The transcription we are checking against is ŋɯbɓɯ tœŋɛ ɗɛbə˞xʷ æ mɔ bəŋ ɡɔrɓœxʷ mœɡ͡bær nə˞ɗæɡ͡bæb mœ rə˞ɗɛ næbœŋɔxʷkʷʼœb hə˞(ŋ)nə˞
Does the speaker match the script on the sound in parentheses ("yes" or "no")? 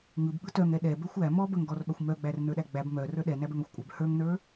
yes